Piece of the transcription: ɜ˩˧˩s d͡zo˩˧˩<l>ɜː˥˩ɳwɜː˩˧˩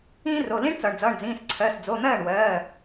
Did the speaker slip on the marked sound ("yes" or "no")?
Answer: yes